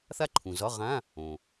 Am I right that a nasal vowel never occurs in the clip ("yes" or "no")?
no